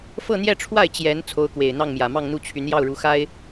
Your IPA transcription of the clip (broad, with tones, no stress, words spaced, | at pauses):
fɤ˥˧n̪jɛ˥˧ʈ͡ʂʰwa˥˩ɪ̯ t͡ɕjɛ˧˥n t͡sʰo˧˥ʊ̯kwe˨˩ɪ̯n̪ɑ˥˩ŋ mjä˨˩mɑ˥˧ŋn̪u˥˩t͡ɕʰy˧˥n jɑ˥˩ʊ̯ɻu˧˥xa˥ɪ̯